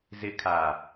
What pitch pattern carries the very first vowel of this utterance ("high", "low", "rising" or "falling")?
falling